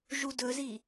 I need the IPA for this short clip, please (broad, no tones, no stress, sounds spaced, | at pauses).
ʒ u d ɵ z i